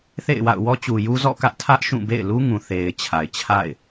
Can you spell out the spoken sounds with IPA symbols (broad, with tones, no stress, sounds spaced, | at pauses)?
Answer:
θ ḛ˦˨ ɪ̯ w a̰˦˨ ʊ̯ w ɔ˦ t͡ɕ u˨ j u˦ z ɔ̰˦˨ k ä˦ ʔ tʰ ä˦ ʔ ʃ ũ˦˨ b ḛ˦˨ ɪ̯ l u˦ ŋ ũ˨ θ e˨ ɪ̯ t͡ɕʰ a˨ ɪ̯ t͡ɕʰ a̰˦˨ ɪ̯